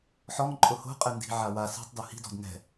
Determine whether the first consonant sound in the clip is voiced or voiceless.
voiceless